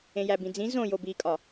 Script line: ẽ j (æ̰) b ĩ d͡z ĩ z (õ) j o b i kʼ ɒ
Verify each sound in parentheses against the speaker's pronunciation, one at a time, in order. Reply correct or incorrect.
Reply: incorrect: æ, correct

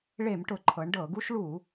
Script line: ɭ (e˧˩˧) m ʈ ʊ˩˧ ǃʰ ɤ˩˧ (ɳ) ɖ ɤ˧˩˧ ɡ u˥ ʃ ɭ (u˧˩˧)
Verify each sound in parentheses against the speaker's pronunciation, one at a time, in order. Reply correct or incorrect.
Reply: correct, correct, correct

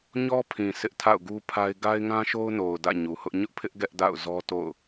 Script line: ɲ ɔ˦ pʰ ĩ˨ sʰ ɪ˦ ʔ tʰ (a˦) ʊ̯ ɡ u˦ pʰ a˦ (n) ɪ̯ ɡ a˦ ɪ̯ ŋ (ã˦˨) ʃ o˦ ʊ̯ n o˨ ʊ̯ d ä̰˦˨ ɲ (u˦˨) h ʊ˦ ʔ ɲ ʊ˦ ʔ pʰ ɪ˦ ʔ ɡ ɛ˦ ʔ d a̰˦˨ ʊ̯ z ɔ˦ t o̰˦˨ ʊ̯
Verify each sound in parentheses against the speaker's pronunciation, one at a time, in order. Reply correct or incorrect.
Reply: incorrect: a̰˦˨, incorrect: none, incorrect: ã˦, incorrect: u˨

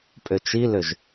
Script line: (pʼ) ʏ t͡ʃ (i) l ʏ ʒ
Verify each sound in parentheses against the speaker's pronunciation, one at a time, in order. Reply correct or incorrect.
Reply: correct, correct

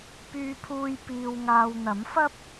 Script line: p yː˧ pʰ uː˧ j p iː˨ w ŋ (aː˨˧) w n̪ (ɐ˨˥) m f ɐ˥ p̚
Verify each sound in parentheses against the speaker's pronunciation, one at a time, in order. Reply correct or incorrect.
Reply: incorrect: aː˨, correct

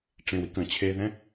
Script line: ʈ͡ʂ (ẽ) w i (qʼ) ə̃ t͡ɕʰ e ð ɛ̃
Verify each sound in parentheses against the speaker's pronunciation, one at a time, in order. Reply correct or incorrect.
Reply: correct, incorrect: k

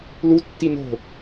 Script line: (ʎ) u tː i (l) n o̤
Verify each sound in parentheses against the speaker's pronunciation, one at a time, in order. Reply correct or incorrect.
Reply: incorrect: l, incorrect: none

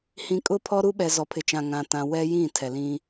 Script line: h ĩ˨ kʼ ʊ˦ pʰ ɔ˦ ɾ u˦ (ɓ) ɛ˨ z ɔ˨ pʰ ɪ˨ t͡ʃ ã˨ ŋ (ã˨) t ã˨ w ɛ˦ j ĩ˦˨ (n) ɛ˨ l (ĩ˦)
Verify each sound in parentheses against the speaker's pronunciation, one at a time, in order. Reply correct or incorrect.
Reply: correct, correct, incorrect: tʰ, correct

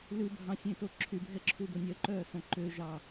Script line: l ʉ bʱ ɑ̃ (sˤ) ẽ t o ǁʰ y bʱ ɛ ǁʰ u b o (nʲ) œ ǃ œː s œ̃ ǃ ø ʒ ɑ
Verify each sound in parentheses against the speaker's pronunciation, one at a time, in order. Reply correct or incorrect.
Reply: incorrect: sʲ, correct

